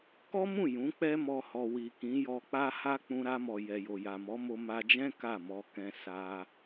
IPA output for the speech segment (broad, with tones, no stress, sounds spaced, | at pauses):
k ɔ˦ m ũ˦˨ j ũ˨˦ k͡p ɛ˦ m ɔ˧ h ɔ˨ w i˨ k ĩ˨˦ j ɔ˧ k͡p a˦ h a˦ k͡p ũ˧ ɾ a˧ m ɔ˨ j ɛ˨ j o˨ j a˨ m ɔ˨˦ m o˧ m a˧ d͡ʒ ɛ̃˦ k a˦˨ m ɔ˧ k ɛ̃˧ s a˧